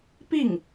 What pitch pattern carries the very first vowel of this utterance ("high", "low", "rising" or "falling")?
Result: falling